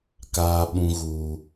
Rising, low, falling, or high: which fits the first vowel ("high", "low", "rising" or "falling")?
low